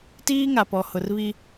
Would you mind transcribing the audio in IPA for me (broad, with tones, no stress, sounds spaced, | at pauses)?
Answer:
t iː˦ ŋ a˨ p ɔ˨ h ʊ˨ r β i˦